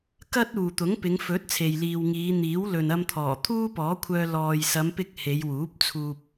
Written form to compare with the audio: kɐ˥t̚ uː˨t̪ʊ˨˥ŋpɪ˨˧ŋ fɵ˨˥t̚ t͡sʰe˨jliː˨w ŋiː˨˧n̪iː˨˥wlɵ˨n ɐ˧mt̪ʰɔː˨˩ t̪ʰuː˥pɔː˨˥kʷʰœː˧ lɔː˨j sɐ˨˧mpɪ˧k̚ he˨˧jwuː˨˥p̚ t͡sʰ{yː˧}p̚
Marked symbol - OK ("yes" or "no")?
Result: no